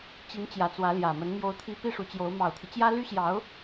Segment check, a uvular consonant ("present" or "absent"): absent